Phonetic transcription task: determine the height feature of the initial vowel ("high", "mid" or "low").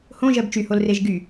mid